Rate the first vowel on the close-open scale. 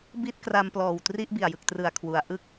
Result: close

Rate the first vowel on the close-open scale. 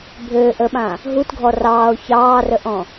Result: mid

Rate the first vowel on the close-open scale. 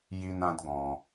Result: close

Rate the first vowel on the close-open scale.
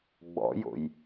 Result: mid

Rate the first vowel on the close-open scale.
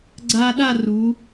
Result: open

